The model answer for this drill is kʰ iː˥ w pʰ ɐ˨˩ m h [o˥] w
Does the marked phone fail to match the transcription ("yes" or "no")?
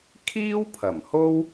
no